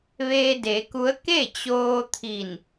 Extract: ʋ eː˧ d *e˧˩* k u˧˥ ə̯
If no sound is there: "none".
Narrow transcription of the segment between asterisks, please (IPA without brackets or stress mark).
e˩˧